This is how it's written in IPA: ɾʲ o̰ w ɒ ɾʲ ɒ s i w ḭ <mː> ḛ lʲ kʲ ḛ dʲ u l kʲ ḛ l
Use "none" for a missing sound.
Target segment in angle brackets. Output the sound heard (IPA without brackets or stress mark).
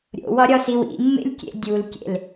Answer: mː